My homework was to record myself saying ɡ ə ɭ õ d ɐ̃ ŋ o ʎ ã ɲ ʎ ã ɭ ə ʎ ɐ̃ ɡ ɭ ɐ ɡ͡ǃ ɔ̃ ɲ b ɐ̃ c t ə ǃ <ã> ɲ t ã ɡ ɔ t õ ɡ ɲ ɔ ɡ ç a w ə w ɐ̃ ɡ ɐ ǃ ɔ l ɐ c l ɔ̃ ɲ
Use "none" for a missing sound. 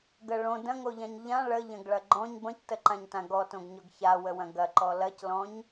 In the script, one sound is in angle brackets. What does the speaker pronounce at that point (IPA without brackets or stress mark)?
ã